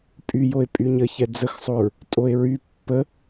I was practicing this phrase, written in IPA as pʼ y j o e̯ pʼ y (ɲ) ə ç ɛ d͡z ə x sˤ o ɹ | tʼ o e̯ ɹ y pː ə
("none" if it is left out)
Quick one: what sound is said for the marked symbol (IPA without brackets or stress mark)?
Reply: ɲ